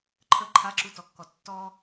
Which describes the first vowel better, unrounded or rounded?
unrounded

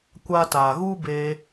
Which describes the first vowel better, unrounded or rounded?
unrounded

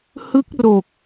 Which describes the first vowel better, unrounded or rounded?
unrounded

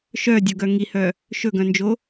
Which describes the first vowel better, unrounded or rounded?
rounded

